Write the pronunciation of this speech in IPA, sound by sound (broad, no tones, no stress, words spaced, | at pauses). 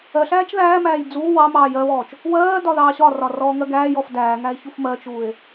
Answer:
ɜɬæːt͡ʃ ðæːmæːj d͡zuː wɑ mɑːjɜβɔːt͡ʃ | wɜːdɒ ðɑːɕɒrɒ rɔːŋɜɡæːjɔf dæː ŋæe̯çufmɜt͡ʃuːe̯